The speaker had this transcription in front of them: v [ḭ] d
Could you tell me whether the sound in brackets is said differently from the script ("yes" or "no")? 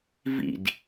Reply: no